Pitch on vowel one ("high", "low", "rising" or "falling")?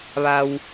low